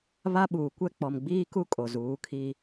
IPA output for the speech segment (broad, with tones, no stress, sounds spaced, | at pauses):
β a˦ ɓ uː˨ kʷ ɛ˦ k͡p ɔ˨ m ɡ͡b iː˦ k u˦ kʼ o˨ z uː˨˦ kʰ i˦